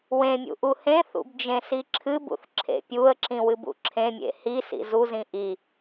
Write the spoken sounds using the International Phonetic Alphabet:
w ẽ mʲ ṵ ʔ u h ẽ θ ṵ b d͡ʒ ẽ s i ǁʰ ɨ b ṵ θ ǁʰ ḛ pʲ u ə̯ ǁ ĩ w ɨ b ṵ ǁʰ ẽ mʲ ḛ h i s ḭ z u z ĩ ʔ i

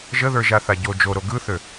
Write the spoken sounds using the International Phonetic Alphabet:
ʒ ə ð ə˞ ʒ a θ a ɟ o d͡ʒ o ɾ o ɡ ɯ θ ø

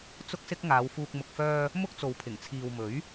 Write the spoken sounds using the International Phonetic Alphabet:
t͡s ʊ˥ k̚ s ɪ˥ k̚ ŋ aː˨˧ w f uː˧ k̚ m ʊ˨ k̚ f œː˧ | m ʊ˥ k̚ t͡s o˨ w pʰ ɪ˨˩ ŋ t͡sʰ iː˨ w m ɵ˨˥ ɥ

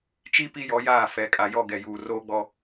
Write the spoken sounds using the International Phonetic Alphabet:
t͡ʃ i˦ p i˦ j ɔ˨˦ j aː˦˨ f ɛ˨ kʼ a˨ j ɔ˦˨ ɡ ɛ˨ j uː˨ r oː˦ ɡ͡b ɔ˦

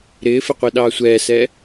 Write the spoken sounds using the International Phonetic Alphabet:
ɾ ɪː f ɪ qʷ i ɗ ɑː sʷ ɛː s ɛ

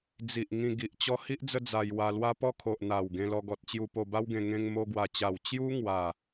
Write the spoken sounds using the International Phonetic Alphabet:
d͡z i˨ ʔ ŋ ĩ˧ ɡ i˨ ʔ t͡ɕ ɔ˦ h i˦ ʔ d͡z ə˦ d͡z a˧ j w a˧ l w a˦ p ɔ˥˧ kʰ o˨ ʔ n̪ a˨˩ w ɡ ẽ˧ l ɔ˧ ɡ ɔ˨ t̚ t͡ɕ j u˧ p o˧ b a˦ w ɡ ẽ˧ ŋ ẽ˧ ŋ m o˧ ɡ w a˨˩ t͡ɕ a˨˩ w t͡ɕ j u˦ ŋ w a˥˧

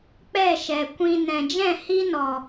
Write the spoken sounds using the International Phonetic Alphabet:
k͡p ɛ˦˨ ʃ ɛ˨ kʷ ĩ˧ n ɛ̃˨ d͡ʒ ɛ̃˦˨ h i˦ n ɔ˨

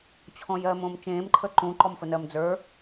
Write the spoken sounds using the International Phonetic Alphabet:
t͡ɕʰ ɔ̃ j ɜ m õː m t͡ʃ ẽː m ǃʰ ə ǃ ũ ǃ ɔ m f ə n ɜ m d͡z ə˞

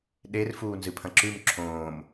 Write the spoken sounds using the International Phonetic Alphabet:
ɗ e r f uː n z ɨ pʰ ɐ̃ ǁ ʉ m ǁʰ õː m

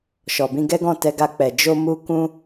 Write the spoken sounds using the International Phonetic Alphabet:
ʃ ɔ˨ b ĩ˧ ɡ ɛ˦ ɡ ɔ̃˦˨ t ɛ˧ ɡ a˧ k͡p ɛ˨ d͡ʒ o˧ m u˧ k ũ˦

